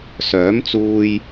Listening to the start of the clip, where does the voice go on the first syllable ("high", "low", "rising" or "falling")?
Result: rising